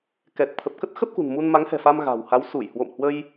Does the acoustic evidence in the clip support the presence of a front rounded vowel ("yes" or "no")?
no